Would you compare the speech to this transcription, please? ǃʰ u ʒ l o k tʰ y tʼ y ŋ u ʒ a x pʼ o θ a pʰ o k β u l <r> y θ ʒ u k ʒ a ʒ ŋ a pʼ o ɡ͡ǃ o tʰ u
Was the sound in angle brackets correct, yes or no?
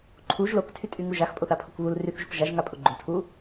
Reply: yes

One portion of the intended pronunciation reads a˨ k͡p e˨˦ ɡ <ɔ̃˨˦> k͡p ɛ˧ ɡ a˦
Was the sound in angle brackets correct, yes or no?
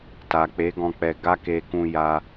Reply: no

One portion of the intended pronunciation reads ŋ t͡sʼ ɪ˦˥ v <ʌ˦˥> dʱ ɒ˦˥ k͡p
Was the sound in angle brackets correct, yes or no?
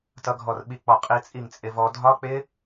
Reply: no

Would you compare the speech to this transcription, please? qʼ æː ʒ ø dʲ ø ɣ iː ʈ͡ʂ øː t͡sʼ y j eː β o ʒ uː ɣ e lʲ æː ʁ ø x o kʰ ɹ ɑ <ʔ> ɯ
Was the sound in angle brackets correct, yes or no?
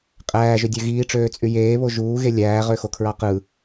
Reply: no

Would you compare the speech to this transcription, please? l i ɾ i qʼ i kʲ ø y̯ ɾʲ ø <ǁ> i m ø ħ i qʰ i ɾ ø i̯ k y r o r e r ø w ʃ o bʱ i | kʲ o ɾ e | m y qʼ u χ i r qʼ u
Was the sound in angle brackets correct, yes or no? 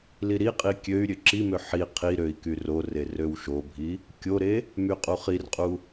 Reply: yes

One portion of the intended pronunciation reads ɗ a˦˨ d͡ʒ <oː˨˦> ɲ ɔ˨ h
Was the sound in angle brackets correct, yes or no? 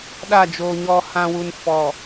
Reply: no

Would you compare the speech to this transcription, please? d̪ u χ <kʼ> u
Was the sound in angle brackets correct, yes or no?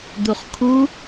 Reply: no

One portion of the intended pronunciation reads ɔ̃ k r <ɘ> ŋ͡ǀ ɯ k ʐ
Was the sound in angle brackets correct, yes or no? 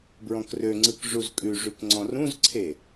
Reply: no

